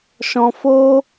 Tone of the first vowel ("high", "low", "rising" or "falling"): low